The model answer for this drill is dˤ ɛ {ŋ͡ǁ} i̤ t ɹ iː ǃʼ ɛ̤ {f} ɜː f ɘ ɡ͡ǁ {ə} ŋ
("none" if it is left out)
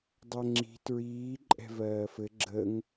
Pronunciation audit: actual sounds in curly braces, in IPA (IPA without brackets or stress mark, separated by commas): ŋ͡ǁ, v, ə